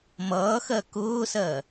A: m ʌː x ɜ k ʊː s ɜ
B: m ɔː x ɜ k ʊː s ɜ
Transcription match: A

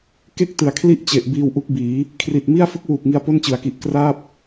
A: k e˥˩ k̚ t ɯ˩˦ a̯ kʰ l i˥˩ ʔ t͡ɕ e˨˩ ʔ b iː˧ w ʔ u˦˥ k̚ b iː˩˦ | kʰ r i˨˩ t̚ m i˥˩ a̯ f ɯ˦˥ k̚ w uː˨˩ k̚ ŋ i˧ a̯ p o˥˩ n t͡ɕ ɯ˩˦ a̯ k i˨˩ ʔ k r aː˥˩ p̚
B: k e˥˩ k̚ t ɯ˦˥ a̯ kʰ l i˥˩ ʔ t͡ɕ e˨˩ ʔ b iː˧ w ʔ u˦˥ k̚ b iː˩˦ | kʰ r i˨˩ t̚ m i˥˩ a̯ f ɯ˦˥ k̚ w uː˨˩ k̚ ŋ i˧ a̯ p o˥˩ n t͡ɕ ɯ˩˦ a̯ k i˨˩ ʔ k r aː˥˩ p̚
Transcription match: A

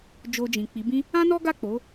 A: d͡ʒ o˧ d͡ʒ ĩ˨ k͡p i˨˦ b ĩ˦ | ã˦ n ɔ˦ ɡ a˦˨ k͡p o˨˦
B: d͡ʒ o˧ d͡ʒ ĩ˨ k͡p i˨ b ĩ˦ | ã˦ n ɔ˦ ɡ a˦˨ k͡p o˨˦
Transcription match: A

